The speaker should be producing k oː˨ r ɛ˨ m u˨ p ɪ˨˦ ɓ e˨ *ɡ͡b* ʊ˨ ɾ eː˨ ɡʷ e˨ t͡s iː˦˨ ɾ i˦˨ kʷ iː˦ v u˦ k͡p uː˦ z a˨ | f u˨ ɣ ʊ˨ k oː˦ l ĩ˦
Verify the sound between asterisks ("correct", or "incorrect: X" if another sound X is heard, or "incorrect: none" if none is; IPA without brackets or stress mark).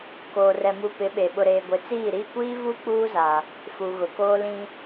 incorrect: ɓ